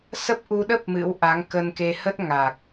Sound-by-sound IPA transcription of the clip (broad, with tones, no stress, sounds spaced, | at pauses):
s ə˦˥ p̚ ʔ u˧ ɗ ə˦˥ p̚ m ɨ̰˧˥ w ʔ a˨˦ ŋ k ə˧ n k e˧ h ə˦˥ t̚ ŋ a˨˩ k̚